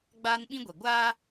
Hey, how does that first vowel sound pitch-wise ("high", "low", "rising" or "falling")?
high